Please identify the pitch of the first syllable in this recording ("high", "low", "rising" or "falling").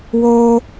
high